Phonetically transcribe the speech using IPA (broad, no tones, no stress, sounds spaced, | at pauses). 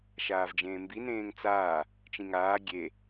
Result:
ʃ aː v d͡ʒ ẽː m b i n ẽː ŋ t͡s aː | t͡ʃ ĩ ŋ aː ɡʲ e